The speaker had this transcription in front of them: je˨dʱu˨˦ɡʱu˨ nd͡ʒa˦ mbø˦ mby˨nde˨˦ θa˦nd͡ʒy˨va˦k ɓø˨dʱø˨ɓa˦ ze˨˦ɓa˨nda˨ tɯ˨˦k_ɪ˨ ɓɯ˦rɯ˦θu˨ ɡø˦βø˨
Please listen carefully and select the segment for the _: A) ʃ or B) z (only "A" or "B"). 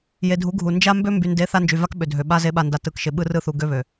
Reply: A